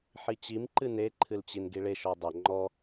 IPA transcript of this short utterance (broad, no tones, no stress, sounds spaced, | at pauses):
ħ i t͡ɕ i m ǃ ɨ n e ǃʰ ɨ l t͡ɕ i n ɡ i ɭ e ʃ ɔ dˤ ɐ ŋ͡ǃ ɔ